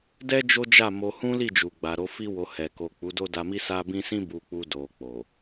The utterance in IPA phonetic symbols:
d ɛ˦ d͡ʒ o˦ d͡ʒ a˦˨ m o˧ h ũ˦ l i˦˨ d͡ʒ u˨ ɡ͡b a˨ ɾ o˨˦ f i˦ w o˧ h ɛ˨ k o˨ k͡p u˨˦ d o˦ d a˧ m i˦ s a˦ b ĩ˦ s ĩ˦ b u˧ k͡p u˧ d o˨ k͡p o˨

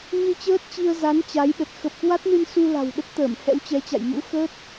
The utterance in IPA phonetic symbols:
ɲ ɨ˧ t͡ɕ əː˦˥ t̚ t͡ɕ i˧ ə̯ z a˨˦ n t͡ɕ a˨˦ j ɗ ə˨˩ t̚ x ə˨˩ p̚ k w a˦˥ t̚ n ɨ˧ n s u˧ l a̤˨˩ w ɗ ə˦˥ t̚ t̪ əː˧˩ m h ɛ̰˧˥ w t͡ɕ ɛ˨˦ t͡ɕ a̰˧˨ j m ṵ˧˥ x əː˦˥ t̚

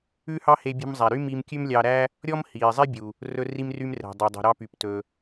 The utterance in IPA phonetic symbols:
ʉ˥ h ɑ˥ h e˧ bʲ ṳ˧ m zˤ æ˩ ɾ y˥ m i˧ m kʲ ʉ˥ m lʲ ɑ˧ ɾ æ˥ | ɾʲ ɔ˥ m h iː˩ zˤ e˥ bʲ u˩ | r ɵ˧ r i˧ m r y˧ m r ɛ̤˩ dˤ ɛ˩ dˤ ṳ˩ ɾ ɑ˧ p y˩ p t ɵ˩

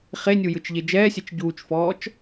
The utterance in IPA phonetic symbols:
χ e nʲ u j ɯ t͡ʃ ʎ e d͡ʒ ɛː sʲ ɛ t͡ʃ ɟ uː t͡ʃ f ɔː t͡ʃ

